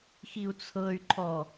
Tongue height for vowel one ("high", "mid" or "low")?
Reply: high